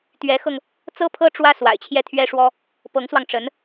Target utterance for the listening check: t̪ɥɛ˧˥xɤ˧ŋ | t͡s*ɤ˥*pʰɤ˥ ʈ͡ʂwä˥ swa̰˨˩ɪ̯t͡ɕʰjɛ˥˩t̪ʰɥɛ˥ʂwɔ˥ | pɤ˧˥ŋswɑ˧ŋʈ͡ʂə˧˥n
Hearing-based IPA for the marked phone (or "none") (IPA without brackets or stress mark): ɤ˥